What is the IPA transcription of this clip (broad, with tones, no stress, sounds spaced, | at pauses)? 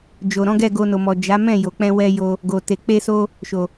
d͡ʒ o˨ ɾ ɔ̃˨˦ ɡ ɛ˦˨ ɡ o˧ n o˨ m ɔ˨ d͡ʒ a˨˦ m ɛ̃˦˨ j o˨ k͡p ɛ̃˧ w ɛ˧ j o˧ | ɡ o˨ t e˨ k͡p e˧ s o˧ | ʃ o˨